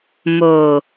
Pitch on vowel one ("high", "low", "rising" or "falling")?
low